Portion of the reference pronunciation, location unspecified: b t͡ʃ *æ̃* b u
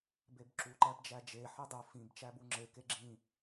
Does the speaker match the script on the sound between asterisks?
no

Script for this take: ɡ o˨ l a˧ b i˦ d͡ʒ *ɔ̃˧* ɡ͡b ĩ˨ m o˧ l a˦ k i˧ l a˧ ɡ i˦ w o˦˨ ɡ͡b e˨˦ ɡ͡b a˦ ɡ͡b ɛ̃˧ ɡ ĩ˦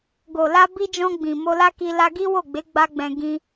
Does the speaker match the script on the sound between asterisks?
yes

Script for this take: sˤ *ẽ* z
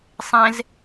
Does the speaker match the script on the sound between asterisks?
yes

